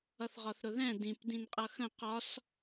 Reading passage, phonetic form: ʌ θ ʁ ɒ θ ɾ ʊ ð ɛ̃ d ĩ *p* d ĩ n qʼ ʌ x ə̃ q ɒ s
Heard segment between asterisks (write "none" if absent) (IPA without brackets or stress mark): p